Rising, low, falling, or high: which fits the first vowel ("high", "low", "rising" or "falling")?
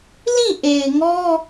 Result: falling